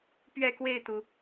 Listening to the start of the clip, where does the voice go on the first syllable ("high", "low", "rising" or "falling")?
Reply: falling